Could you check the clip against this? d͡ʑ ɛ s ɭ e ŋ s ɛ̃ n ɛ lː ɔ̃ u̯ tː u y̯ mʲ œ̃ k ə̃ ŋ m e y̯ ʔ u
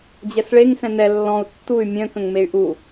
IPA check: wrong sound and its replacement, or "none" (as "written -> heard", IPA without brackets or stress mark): none